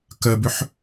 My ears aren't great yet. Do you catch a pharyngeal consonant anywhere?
yes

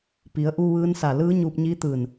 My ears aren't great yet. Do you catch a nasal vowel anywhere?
no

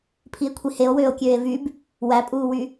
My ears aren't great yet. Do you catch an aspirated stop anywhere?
yes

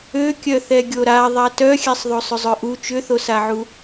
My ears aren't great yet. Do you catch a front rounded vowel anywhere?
yes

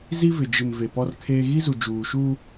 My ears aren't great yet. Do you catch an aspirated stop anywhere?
yes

